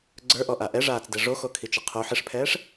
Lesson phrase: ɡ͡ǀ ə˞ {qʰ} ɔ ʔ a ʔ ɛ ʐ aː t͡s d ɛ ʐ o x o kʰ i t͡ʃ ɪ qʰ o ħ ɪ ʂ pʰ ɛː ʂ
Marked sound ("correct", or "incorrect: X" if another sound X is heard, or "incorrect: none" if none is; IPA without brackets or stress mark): incorrect: ʔ